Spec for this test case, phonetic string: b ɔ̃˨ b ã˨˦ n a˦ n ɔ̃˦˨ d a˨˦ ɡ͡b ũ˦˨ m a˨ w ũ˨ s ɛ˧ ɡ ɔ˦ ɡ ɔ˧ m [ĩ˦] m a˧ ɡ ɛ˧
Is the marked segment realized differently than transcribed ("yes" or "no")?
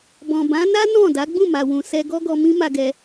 no